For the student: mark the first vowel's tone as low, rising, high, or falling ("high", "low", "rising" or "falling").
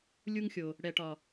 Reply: high